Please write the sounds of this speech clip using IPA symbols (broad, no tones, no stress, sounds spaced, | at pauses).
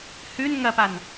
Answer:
h ʉ n ŋ ɐ p a n